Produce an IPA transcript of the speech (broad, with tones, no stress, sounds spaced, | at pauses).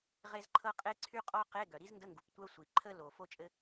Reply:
ʁ e˥ z ǃʰ ɤ˥ qʼ e˥ ǀʰ y˥ qʼ ɔ˥ q e˧˥˧ ɡ œ˩ ɾ i˥ z n d ə˧˥˧ ŋ ɡ u˩ p tʷ œ˥ sʷ i˩ ǃʰ ə˥ l o˩ f o˥ t͡ʃʼ ɘ˥